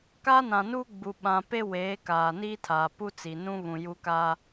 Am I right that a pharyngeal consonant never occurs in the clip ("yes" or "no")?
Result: yes